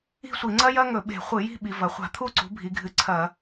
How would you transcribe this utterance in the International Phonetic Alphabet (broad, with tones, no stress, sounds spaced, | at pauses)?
i̤˥˧ sʷ i˧˩˧ ŋ͡ǀ ɐ˥ j ɐ˥ ŋ ɵ˧˩˧ ɓ e̤˧˩˧ χʷ ɨ˧˩˧ j i̤˥˧ ɓ i˩˧ v ɐ˩˧ χʷ a̤˧˩˧ t̪ʰ u˥˧ ǀ ṳ˩˥ bʱ i˩˧ ɡʱ ɨ˩˥ ǀʰ ɐ˧˩˧